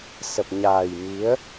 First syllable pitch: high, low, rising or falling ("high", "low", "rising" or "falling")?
low